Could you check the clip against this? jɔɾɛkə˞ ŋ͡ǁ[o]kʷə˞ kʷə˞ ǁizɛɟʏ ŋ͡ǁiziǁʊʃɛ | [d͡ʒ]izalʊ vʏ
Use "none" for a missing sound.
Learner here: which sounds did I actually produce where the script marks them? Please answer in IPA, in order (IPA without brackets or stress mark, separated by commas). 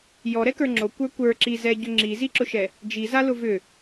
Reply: o, d͡ʒ